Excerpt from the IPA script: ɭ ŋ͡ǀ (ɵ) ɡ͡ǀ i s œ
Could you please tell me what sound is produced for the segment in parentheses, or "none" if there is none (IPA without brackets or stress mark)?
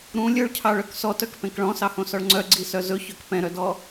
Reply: œ